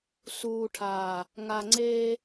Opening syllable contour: low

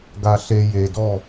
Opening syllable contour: low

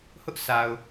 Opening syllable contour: high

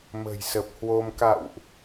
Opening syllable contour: low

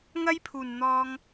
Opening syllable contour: high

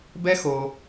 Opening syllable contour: high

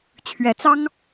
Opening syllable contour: rising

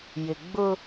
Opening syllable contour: low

